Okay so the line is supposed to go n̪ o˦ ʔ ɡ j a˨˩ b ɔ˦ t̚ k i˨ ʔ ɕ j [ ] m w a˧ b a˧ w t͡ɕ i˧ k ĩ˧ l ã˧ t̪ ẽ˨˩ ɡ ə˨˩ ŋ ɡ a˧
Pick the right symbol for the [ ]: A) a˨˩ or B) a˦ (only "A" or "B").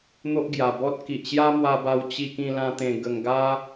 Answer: B